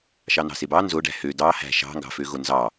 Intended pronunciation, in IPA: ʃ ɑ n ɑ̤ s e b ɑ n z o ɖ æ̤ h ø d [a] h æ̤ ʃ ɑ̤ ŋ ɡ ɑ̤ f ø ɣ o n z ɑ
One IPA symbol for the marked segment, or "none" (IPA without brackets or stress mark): ɑ